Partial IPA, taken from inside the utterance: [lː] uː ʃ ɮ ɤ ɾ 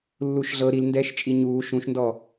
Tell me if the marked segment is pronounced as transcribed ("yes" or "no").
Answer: yes